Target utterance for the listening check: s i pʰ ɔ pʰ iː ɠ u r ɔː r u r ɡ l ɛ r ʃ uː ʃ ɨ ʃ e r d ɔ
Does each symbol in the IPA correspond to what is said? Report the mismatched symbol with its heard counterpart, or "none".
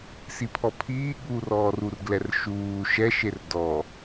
ɨ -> ɛ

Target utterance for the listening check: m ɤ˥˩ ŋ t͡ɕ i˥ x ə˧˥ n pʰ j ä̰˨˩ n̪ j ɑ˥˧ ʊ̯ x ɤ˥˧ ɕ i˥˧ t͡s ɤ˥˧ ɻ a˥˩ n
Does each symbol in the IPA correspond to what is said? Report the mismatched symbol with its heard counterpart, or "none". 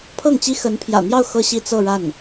m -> pʰ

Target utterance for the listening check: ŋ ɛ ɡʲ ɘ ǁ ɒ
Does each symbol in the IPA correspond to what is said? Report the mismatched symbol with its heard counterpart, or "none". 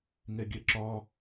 ɘ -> ɛ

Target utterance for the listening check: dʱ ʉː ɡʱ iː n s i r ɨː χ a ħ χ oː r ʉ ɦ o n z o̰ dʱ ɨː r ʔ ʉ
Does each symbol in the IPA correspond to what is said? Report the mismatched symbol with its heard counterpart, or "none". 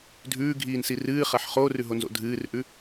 none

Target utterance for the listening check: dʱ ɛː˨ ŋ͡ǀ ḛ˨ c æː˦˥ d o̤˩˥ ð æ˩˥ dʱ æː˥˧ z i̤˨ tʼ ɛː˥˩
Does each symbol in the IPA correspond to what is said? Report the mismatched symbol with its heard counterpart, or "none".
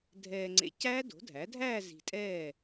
ð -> dʱ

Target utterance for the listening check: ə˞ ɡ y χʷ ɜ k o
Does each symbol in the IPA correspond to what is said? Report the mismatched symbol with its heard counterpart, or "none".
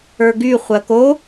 none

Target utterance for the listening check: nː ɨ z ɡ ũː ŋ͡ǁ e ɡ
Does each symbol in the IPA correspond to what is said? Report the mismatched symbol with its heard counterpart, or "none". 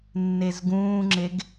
ɨ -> e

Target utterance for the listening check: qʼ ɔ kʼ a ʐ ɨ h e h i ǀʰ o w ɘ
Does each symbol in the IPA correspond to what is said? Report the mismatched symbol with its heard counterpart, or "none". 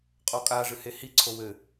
none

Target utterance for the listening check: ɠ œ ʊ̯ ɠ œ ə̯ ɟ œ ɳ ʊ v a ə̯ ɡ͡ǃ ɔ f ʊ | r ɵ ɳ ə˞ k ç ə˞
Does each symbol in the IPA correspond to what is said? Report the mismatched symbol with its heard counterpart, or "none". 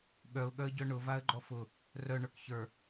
ɵ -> œ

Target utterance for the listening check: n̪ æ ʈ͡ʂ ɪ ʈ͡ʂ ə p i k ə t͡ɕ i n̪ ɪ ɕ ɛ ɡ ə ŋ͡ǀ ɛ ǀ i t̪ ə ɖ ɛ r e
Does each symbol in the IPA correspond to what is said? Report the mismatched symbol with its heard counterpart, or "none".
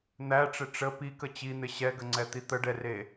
ǀ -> t̪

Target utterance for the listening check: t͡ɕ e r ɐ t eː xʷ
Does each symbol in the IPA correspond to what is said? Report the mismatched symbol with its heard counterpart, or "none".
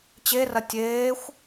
t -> tʲ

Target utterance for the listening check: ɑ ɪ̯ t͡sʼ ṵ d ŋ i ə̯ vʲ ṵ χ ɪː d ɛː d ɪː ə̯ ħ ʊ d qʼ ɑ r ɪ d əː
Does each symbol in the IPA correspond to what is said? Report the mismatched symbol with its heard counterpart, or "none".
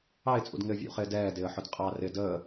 i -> ɪ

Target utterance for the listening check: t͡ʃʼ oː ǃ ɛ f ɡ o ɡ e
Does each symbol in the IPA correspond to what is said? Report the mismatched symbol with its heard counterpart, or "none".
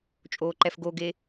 none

